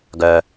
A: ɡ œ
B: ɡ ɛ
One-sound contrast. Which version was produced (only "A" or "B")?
A